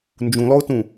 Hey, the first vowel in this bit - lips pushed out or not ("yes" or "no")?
yes